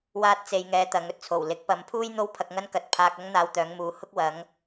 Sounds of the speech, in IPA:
w aː˥ t̚ t͡s e˧ j ŋ ɛː˧ t̪ ɐ˨˧ ŋ ɵ˧ t̚ t͡sʰ o˨˩ w l ɪ˨˥ k̚ p ɐ˨˧ m pʰ uː˥ j n̪ o˥ w pʰ ɐ˧ k̚ ŋ ɐ˥ n k ɐ˧ t̚ pʰ aː˧ k̚ ɐ˥ ŋ n̪ aː˧ w t̪ œː˨˧ ŋ m uː˨˧ h ʊ˥ k̚ w ɐ˨˧ ŋ

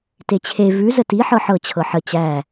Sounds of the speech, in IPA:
t e t͡ɕʰ e v ʉ z ə t i ħ ɤ ħ ɤ t͡ɕʰ ɤ ħ ə t͡ɕ æ

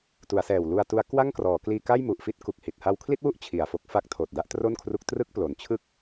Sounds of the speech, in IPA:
t u˩˦ a̯ s ɛː˨˩ w l u˧ a̯ t u˦˥ a̯ k w a˥˩ ŋ k r ɔː˩˦ k l iː˧ k a˥˩ j m u˨˩ ʔ f i˥˩ t̚ k u˨˩ k̚ h i˨˩ t̚ h a˧ w kʰ l i˥˩ t̚ w u˥˩ ʔ t͡ɕʰ i˨˩ a̯ f o˦˥ k̚ f a˦˥ k̚ tʰ oː˨˩ t̚ d a˦˥ ʔ t r o˥˩ n kʰ r u˦˥ k̚ t r ɯ˥˩ k̚ p l o˨˩ n t͡ɕʰ ɯ˥˩ k̚

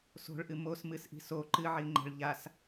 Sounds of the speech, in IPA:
s o̤ ɭ ʔ ɨ m o s m ɨ s ʔ i̤ s o ǃ ɨ ʕ i ŋ͡ǃ ɛ̤ ɭ ʎ a s

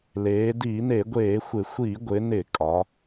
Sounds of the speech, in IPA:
l eː˩˧ d iː˧˩˧ n e˧˩˧ ɡʷ eː˧˩˧ xʷ ɪ˧˩˧ xʷ iː˧˩˧ ɡʷ ɪ˩˧ n ɪ˧˩˧ kʼ ɒ˩˧

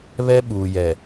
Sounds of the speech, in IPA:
β ɛ˦ ɓ uː˨ j ɛ˨

